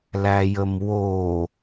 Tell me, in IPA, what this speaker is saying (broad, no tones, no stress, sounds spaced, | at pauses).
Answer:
l æ j ə m w o